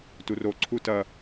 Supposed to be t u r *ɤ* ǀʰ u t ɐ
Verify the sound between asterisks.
incorrect: o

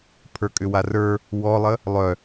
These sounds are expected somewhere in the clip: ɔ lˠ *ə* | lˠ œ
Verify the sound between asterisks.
correct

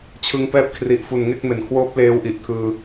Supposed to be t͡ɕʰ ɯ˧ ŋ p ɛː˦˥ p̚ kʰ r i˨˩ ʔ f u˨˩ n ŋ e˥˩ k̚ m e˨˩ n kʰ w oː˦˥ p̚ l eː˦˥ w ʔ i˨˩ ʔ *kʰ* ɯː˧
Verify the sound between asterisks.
correct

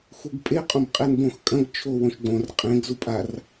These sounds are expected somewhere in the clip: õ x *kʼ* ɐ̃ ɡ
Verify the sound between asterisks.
correct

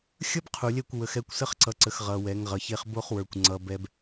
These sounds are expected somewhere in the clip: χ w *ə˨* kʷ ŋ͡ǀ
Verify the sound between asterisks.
incorrect: ə˞˨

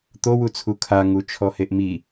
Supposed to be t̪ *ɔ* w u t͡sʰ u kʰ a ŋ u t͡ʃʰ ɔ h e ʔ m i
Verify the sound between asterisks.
incorrect: o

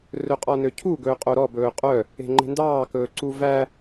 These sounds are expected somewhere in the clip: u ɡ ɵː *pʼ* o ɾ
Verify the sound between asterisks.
incorrect: qʼ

